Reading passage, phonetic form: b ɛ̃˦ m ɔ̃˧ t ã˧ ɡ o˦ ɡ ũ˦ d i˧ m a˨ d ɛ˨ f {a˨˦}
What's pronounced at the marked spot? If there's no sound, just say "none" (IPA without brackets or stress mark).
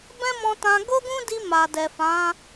ã˨˦